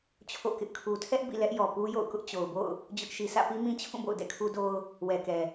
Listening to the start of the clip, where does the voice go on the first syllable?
falling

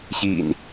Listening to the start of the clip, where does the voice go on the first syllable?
low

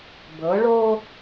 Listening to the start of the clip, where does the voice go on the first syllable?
rising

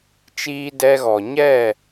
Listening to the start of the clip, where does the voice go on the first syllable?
high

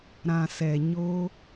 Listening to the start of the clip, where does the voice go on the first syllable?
low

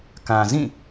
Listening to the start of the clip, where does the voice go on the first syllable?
low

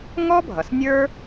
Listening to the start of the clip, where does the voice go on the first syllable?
high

